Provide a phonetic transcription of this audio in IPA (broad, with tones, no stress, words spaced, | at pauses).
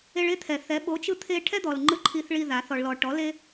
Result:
e˧ɭe˦t̪ʰɛ˨θɛ˨˦ ɓo˨˦t͡ʃɯ˧ t̪ʰe˧ ʈʰɛ˦d̪ɔ˨lŋ͡ǃɯ˧ ǃʰi˧θɭi˧ ða˨˦θɔ˧ɭlɔ˧ ʈɔ˨˦le˦